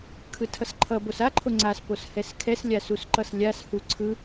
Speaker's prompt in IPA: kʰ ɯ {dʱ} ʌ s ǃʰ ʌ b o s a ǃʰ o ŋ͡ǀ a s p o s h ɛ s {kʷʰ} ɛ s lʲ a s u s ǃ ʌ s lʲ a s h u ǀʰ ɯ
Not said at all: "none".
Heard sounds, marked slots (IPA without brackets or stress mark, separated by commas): tʰ, kʰ